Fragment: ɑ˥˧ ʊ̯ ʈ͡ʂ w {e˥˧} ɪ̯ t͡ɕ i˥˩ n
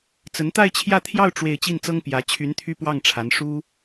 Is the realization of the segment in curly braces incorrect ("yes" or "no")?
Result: no